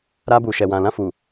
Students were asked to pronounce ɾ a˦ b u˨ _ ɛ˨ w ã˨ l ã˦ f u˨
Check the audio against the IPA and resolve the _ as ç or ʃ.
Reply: ʃ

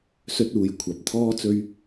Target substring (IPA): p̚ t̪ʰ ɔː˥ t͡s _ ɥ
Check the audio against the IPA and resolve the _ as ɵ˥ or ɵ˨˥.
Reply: ɵ˥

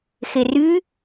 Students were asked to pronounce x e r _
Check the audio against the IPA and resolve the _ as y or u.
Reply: y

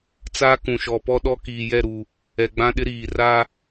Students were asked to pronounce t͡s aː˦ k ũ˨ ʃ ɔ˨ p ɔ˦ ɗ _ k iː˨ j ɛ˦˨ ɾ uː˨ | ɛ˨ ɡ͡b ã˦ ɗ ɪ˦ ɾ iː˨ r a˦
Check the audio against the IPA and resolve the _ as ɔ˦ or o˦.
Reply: ɔ˦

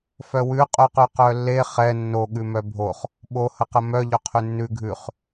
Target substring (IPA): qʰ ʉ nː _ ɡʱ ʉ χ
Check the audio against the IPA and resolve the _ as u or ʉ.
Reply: ʉ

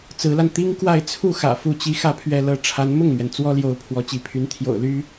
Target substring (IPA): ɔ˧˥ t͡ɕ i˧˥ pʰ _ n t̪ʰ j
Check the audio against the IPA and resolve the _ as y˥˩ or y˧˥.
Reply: y˧˥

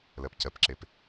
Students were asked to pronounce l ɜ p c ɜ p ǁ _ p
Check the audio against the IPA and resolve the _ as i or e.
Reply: e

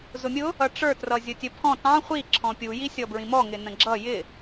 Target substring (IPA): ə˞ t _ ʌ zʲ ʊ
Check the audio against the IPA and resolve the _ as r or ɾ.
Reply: r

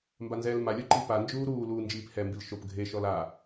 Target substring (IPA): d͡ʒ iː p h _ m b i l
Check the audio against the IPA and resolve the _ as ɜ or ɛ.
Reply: ɛ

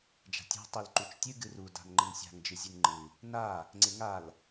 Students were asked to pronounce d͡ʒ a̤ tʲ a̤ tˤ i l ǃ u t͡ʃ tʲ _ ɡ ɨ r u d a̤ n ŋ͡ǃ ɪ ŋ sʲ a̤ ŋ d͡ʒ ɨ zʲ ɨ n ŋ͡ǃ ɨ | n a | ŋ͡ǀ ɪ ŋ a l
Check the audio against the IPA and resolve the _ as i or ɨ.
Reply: ɨ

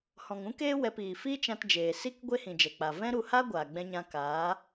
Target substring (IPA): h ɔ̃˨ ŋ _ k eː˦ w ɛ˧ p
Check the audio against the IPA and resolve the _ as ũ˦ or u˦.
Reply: ũ˦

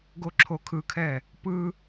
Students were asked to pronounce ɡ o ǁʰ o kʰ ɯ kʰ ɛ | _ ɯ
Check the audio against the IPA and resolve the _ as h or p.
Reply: p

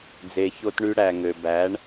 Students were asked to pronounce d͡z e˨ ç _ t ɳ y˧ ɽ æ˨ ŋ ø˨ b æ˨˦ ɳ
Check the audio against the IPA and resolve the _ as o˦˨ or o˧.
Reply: o˧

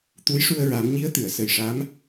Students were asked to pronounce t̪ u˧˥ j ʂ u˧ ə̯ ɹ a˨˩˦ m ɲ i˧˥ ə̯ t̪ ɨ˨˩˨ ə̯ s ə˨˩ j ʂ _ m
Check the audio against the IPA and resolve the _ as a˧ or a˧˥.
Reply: a˧˥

